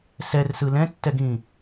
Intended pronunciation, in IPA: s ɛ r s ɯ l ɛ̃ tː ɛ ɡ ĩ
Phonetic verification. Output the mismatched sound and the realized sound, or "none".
none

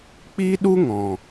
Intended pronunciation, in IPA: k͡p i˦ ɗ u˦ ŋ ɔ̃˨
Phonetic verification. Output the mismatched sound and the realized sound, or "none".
none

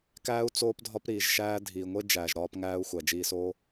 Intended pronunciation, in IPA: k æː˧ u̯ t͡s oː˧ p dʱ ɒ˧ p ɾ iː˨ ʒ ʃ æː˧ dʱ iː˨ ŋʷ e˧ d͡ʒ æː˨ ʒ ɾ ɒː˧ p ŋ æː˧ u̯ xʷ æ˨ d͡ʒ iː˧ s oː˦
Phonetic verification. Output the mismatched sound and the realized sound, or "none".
none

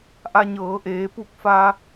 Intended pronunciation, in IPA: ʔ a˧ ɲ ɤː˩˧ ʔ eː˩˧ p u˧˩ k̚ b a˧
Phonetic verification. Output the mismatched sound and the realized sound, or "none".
b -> f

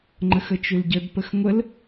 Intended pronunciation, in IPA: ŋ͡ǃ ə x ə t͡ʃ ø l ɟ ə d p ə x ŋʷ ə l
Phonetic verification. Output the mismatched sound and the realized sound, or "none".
none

